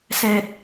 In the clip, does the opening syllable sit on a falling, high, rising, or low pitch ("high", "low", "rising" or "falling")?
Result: high